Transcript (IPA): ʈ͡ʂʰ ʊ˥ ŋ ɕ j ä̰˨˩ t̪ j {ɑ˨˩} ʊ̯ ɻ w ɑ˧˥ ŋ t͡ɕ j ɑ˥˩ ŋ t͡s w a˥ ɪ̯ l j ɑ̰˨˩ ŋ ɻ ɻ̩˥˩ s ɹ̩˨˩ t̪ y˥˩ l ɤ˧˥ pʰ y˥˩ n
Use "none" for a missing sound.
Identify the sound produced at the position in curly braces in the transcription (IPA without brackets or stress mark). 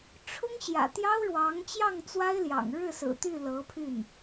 ɑ˥